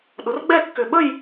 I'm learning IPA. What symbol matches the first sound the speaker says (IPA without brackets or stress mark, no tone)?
ɗ